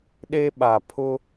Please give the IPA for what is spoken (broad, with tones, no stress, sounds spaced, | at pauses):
ɗ e˦ ɓ a˨ pʰ ʊ˦